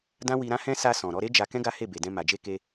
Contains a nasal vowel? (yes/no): yes